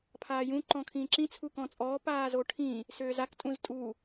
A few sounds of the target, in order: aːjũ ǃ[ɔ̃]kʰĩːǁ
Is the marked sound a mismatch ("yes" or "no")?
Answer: no